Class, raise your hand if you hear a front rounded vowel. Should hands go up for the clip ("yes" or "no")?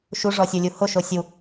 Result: no